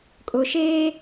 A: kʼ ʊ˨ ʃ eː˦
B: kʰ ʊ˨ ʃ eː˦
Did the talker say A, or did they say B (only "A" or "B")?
A